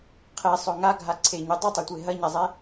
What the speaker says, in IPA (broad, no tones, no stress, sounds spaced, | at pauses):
qʰ e sˤ ɵ ŋ a ɡʱ a ǀʰ e ɲ u dˤ ɨ tˤ u tʷ e ɦ ɐ ɲ a zˤ e